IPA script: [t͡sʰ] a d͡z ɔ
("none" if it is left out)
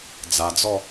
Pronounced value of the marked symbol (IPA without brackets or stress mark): d͡z